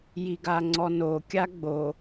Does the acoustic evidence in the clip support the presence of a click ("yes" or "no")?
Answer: yes